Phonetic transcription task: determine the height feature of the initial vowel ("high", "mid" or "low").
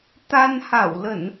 low